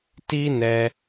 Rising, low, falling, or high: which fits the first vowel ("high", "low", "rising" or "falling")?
high